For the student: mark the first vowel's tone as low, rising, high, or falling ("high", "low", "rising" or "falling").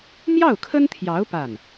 falling